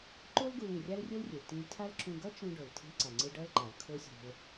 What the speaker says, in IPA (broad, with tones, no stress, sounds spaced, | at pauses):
ǃ o˥ l ɡ u˧ l ĩ˩ rʲ a˥ l rʲ o˥ l rʲ e˩ l t ĩ˧ l tʰ a˥ l ǁ ũ˧ ɡ ʌ˥ t͡ʃ ũ˧ ɖ o˩ l tʰ i̤˧ l ǀ a˩ ŋ͡ǀ ɯ˧ ɖ ʌ˥ l ǃ a˩ l kʰ o˥ sʲ o̤˧ l